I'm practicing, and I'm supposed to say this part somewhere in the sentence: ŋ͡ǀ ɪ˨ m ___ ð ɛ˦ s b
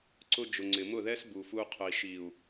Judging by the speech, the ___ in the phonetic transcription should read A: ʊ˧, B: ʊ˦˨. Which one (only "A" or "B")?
B